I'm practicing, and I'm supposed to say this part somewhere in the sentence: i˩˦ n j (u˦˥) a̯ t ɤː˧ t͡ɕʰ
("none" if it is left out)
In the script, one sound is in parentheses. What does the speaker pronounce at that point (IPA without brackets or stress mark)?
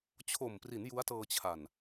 u˦˥